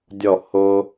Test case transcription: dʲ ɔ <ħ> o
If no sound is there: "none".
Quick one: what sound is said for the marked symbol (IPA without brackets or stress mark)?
h